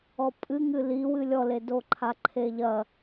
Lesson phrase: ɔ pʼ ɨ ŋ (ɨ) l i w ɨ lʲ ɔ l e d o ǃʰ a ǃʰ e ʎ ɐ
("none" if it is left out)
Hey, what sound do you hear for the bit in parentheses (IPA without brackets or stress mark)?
ɨ